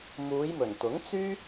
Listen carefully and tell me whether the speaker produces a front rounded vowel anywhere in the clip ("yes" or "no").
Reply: yes